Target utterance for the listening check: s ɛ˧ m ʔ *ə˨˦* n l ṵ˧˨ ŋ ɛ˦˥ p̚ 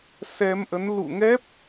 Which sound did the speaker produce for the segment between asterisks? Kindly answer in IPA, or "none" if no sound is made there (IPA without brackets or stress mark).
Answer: ə˨˦